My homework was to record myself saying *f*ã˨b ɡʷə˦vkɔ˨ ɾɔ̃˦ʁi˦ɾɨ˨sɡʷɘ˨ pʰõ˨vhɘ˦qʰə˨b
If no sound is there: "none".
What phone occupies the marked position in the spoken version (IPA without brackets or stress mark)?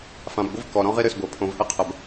f